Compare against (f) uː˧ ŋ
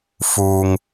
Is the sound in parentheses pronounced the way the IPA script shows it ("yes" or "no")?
yes